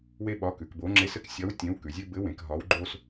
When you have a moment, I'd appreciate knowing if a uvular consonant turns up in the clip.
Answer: no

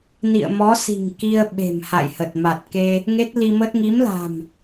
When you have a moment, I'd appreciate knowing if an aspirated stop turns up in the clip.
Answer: no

